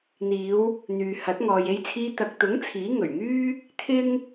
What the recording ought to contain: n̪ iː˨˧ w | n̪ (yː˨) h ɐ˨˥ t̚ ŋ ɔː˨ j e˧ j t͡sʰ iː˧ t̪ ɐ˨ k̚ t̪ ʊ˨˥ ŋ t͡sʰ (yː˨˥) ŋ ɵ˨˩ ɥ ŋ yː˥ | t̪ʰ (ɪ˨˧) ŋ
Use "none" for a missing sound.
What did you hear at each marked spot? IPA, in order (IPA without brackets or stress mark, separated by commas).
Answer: yː˨, iː˨˥, ɪ˥